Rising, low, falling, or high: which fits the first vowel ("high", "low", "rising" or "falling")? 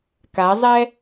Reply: rising